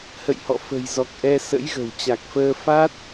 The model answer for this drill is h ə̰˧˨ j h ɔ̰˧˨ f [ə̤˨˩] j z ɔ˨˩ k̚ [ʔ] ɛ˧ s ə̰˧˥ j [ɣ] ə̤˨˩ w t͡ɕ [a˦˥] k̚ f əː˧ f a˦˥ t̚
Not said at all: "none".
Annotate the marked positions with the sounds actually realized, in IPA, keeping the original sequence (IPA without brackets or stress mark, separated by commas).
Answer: ə̤˨˩, ʔ, ɣ, a˨˩